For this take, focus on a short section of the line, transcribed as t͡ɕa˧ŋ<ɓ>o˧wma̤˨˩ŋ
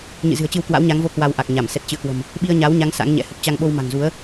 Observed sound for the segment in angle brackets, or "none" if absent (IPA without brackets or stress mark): ɓ